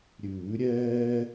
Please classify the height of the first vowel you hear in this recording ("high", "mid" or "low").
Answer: high